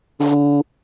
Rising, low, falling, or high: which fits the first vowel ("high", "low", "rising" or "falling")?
high